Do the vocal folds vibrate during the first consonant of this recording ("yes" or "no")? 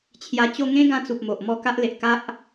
no